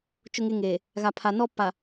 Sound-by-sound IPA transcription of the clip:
t͡ʃʊ˦ŋe˦ŋeː˨ | ɣa˨pʰa˨nɔ˦ pa˨

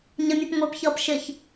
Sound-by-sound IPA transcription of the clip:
ɲəmʲɔp ŋʷepçʌːp ʃɪç

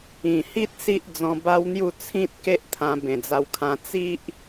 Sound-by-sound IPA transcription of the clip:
ĩ˨˩hi˦t̚ si˦ʔd͡zɔ̃˧ba˦wn̪ju˥˧ t͡sʰĩ˦t̚ke˦ʔt̪ʰã˧ bẽ˨˩d͡za˧wkʰã˧ t͡si˦ʔ

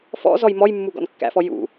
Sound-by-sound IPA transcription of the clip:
fɔ̰ zɔjmɔjmːu ɡɔ̰nkːæ̰fɔ jṵ

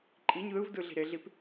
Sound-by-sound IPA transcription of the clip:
ǃʼiɲ ðɯvdɯ ɮi̤ɾeɮip

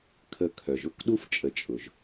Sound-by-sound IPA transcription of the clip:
kʰə˨kʰœ˩ʒ ʊ˥kɗu˥f t͡ʃʼə˨t͡ʃʼʊ˩ʒ

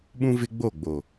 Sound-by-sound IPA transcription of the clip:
ɓũ˦vɪ˦ɡ͡bo˦˨ɡ͡bo˨

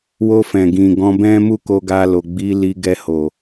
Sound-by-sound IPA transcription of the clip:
wo˧fɛ̃˨ɡĩ˨ ɡɔ̃˧bɛ̃˦ mu˦ko˧ɡa˧lo˨ ɡ͡bi˨˦li˧ ɡɛ˧ho˨

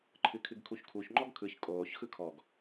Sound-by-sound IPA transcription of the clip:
ǃʰɨkʰɨɡkʰuçkʰuç ŋ͡ǃɔɡkʰɯç kʼoːç xɯkʰɔɡ

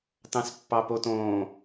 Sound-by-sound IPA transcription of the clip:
tɑ̃spːɑpotõː

